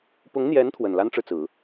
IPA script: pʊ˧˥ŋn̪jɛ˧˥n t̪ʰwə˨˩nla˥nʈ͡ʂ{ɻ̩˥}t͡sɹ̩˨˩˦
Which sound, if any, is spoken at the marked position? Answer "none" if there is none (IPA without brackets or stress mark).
ɻ̩˨